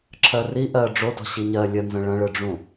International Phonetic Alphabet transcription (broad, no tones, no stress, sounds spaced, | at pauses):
ǁʰ ɜ r i ʔ ɜ ɖ͡ʐ o d ɔ̤ ɕ i ɲ ɜ lʲ ə n z ə̃ ɭ ɐ̃ ɭ ɯ ɖ͡ʐ ũ